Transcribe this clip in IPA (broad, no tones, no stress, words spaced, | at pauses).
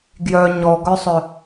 ɡjœ ɲɔɡœsˤœ